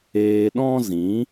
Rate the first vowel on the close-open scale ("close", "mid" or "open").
mid